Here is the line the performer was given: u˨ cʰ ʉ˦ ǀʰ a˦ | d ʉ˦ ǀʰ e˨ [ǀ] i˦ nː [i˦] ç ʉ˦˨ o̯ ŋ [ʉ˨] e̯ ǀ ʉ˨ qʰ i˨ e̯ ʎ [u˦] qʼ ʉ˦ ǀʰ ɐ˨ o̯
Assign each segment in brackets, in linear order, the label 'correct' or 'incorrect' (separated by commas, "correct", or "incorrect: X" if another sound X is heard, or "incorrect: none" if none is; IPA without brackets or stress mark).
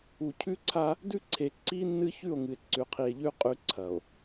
correct, incorrect: ɨ˦, incorrect: ɨ˨, incorrect: ʉ˦